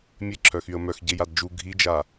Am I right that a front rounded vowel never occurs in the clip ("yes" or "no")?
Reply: no